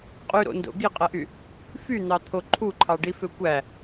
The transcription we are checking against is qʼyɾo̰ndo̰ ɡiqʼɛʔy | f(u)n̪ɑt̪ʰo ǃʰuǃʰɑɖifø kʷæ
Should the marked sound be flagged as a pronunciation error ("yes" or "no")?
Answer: yes